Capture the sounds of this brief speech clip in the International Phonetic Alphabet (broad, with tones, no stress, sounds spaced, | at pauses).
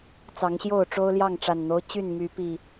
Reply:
t͡s ɑ˨˦ ŋ ɕ j o˥˨ ʊ̯ ʈ͡ʂ o˦ ʊ̯ l j ɑ˥˨ ŋ ʈ͡ʂ a˨˩ n n̪ o˦ ʊ̯ t͡ɕ y˥˨ n m y˨˦ p i˨˩